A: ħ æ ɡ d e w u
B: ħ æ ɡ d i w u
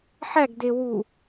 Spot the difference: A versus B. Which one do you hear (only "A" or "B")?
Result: A